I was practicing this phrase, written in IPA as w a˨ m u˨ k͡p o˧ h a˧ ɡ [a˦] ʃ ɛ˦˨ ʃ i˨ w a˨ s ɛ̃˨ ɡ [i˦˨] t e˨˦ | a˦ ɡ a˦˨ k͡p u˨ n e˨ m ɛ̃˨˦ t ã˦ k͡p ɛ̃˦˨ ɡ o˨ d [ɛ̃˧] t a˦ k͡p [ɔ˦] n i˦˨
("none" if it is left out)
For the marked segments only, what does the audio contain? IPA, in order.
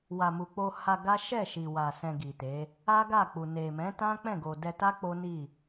a˦, i˨, ɛ˧, o˦

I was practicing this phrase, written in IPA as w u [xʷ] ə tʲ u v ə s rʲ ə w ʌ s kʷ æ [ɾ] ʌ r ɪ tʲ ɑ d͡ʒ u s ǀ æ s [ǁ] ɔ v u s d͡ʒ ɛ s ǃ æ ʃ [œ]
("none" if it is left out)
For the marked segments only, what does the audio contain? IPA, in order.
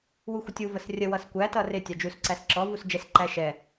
xʷ, t, ǁ, ɛ

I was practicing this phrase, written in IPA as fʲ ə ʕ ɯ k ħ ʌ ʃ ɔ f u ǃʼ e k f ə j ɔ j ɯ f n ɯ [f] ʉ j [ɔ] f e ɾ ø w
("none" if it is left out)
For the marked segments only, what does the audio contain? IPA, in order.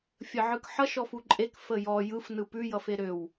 p, ʌ

